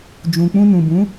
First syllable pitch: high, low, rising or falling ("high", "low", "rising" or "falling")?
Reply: low